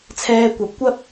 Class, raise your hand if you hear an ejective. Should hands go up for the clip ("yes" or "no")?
no